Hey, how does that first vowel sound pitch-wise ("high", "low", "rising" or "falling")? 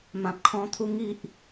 low